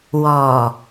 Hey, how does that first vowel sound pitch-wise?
low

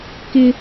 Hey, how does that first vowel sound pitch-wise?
high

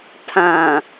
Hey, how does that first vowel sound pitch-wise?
low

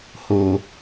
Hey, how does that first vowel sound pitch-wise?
low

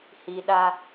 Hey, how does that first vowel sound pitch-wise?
low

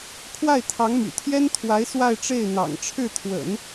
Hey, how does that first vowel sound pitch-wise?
falling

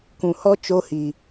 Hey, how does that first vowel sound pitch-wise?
low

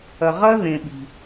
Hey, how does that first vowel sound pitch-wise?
low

